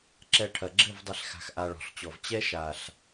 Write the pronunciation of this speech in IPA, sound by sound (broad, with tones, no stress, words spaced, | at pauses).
ǁɛ˧ʈʰɐ˨ɡ͡ǁɘ˦˨vdˤi˨ɬ xa̤˨xʔa˨ ɭɔ̤˨ɬt͡ɕɔ˨v t͡ɕɛ˦ʃa˨ɬ